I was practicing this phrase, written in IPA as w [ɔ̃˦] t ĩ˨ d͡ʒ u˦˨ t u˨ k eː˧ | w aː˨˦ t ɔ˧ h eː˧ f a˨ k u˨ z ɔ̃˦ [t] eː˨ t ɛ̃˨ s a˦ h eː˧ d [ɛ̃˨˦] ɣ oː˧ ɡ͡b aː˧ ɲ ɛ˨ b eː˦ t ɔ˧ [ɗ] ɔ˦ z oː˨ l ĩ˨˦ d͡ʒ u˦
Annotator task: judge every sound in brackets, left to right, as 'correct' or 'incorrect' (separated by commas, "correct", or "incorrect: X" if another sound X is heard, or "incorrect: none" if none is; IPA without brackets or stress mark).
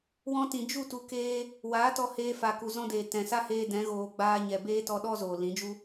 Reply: incorrect: ɔ̃˧, incorrect: d, correct, correct